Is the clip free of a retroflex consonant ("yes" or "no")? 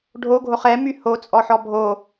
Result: no